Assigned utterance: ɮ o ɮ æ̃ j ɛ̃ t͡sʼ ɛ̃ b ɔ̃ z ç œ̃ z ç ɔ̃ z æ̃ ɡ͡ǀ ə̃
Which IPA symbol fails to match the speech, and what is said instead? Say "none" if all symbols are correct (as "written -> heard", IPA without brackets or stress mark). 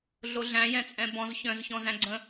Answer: none